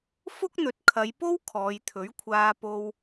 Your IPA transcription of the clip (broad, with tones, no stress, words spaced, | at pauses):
fʊ˥k̚n̪ɵ˨˥t̚kʰɐ˨˧jpo˥w kʰɔː˨˧jt̪ʰɵ˨˥ɥkʷʰaː˧ po˧w